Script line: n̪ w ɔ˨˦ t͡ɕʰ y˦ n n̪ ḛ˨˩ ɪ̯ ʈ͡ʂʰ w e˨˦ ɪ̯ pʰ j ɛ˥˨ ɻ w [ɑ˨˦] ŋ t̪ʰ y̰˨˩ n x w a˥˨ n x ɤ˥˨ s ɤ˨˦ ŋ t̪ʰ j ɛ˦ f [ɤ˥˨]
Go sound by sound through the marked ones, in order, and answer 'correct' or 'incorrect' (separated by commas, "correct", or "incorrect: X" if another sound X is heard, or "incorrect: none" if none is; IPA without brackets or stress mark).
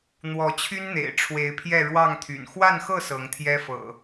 incorrect: ɑ˥˨, incorrect: ɤ̰˨˩